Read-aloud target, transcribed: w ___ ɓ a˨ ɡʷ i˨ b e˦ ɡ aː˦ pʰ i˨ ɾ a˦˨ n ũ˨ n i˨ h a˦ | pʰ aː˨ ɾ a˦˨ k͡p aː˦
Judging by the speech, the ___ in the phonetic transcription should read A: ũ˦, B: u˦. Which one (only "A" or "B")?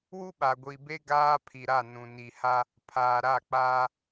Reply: B